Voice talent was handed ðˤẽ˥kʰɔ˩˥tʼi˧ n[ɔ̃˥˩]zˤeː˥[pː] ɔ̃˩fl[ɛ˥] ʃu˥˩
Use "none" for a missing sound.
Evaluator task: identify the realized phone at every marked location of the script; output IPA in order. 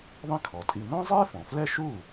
ɔ̃˥, f, ɛ˥

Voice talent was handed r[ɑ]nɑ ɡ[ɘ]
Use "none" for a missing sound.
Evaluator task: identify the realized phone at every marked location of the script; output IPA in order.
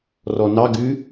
ɔ, ʉ

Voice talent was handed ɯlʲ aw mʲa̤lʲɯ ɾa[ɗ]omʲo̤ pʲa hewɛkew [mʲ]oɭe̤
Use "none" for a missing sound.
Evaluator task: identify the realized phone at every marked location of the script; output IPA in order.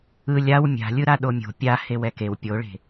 ɗ, pʲ

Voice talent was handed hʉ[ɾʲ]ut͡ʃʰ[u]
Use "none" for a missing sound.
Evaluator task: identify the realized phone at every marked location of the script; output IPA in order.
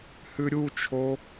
ɾʲ, o

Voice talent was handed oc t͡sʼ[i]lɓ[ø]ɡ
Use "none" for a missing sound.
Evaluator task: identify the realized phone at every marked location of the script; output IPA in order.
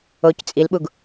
i, u

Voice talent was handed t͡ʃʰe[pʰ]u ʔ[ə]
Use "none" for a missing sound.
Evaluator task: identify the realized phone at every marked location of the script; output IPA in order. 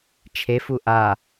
f, a

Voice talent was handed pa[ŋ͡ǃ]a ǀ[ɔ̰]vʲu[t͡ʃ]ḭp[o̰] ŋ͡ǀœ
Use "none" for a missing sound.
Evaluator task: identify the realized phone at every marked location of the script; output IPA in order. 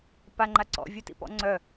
ŋ͡ǃ, ɔ̰, t, ɔ̰

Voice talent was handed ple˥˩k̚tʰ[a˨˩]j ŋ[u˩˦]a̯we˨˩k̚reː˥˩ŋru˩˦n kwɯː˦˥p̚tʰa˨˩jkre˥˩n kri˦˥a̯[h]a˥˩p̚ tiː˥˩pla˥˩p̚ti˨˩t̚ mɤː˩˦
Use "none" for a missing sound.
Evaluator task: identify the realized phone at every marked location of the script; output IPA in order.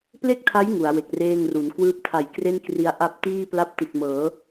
a˦˥, u˩˦, ʔ

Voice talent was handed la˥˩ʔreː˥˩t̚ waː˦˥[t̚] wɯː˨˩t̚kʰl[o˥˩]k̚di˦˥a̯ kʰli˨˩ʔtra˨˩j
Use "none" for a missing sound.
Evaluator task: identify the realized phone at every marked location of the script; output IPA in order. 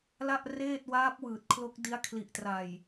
p̚, o˦˥

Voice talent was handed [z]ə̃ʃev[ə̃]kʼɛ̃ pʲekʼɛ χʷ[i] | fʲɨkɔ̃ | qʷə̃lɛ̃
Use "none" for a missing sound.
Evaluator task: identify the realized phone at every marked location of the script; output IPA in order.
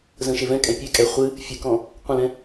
z, ɛ̃, ɨ

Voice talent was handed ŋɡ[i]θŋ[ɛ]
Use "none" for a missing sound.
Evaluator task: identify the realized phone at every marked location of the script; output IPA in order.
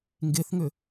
e, ʏ

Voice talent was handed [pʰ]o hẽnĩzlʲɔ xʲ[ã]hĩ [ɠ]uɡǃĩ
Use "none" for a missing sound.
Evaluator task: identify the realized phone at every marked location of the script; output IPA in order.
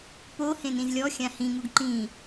p, ã, ŋ

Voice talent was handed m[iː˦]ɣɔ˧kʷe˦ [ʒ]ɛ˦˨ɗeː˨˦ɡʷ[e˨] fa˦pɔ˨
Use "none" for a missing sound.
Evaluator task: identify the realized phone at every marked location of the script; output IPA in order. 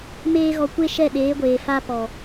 eː˦, ʃ, eː˨

